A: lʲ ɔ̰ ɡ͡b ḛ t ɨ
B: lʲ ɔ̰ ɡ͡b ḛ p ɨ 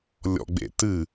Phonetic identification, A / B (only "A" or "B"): A